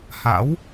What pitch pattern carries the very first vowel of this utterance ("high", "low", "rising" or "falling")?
rising